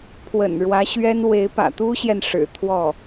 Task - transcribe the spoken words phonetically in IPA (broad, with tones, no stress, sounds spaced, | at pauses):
pʰ w ə̰˨˩ n ɻ w ä˧˥ ɕ ɥ ɛ˥ n w e˧˥ ɪ̯ p ä̰˨˩ t̪ u˥ ɕ j ɛ˨ n ʂ ɻ̩˨˩ t̪ʰ w ɔ˥˩